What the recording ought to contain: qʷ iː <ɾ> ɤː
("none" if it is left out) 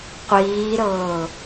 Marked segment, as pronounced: ɾ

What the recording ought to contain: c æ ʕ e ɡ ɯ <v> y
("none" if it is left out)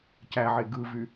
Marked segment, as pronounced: v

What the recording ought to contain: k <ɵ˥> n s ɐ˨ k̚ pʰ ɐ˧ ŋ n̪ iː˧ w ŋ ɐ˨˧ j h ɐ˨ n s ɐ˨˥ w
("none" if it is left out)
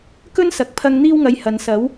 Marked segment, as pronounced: ɵ˥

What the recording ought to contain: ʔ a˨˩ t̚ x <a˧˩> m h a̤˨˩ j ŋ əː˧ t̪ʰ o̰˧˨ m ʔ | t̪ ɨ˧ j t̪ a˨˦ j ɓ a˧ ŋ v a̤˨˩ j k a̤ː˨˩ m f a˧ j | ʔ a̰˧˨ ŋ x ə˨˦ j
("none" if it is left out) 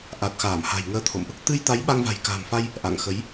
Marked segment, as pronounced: aː˧˩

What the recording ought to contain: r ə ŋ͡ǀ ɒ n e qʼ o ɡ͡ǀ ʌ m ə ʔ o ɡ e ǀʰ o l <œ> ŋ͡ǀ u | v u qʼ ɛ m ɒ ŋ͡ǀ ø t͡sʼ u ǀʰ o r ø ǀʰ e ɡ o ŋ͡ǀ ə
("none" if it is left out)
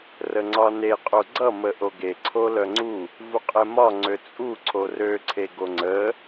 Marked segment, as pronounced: œ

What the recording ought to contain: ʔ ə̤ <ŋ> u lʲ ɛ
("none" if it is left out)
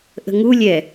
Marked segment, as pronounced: ŋ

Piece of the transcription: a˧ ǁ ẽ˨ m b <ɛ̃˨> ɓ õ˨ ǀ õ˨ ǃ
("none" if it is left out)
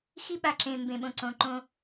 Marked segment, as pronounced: ẽ˨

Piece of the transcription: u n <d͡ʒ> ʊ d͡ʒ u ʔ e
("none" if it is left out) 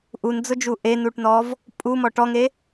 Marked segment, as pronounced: d͡z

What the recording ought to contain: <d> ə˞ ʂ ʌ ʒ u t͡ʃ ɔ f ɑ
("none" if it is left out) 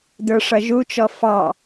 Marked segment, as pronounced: d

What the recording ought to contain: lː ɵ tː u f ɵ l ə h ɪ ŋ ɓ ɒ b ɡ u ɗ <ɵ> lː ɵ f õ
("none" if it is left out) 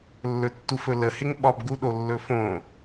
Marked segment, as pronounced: o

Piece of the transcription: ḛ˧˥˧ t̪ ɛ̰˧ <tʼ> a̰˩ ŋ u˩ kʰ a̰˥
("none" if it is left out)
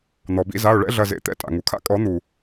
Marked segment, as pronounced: tʼ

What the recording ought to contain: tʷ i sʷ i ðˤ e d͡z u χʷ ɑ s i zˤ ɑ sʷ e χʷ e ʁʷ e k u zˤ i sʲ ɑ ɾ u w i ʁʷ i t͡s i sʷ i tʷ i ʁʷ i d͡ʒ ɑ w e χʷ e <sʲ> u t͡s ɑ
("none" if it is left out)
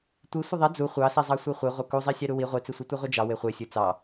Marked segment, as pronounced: sʲ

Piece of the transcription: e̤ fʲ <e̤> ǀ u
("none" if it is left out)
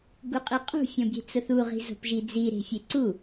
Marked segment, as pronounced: e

